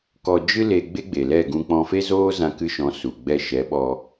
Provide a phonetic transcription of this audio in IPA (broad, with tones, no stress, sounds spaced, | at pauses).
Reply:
k ɔ˧ d͡ʒ ɨ˦ l e˧ ɡ͡b e˦ ɡ͡b e˨ l ɛ˦˨ ɡ ũ˧ k͡p ɔ̃˧ f e˦ z oː˦ z ã˧ k ɨ˧ ʃ ɔ̃˨˦ s u˨ ɡ͡b ɛ˧ ʃ ɛ˨˦ ɓ ɔ˧